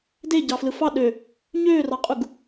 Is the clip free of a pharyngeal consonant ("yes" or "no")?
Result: yes